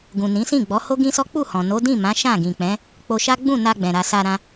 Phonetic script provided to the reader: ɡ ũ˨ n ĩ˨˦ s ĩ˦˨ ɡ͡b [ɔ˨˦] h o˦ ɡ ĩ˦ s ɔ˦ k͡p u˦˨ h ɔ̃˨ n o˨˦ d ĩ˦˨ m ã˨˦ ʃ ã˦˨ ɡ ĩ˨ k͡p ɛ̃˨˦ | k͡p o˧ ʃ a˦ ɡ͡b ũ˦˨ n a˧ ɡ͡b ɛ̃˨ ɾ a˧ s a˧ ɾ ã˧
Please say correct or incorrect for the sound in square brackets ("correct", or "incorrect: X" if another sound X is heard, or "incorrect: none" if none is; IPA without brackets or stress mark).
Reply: correct